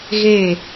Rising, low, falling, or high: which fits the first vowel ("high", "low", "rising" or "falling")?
falling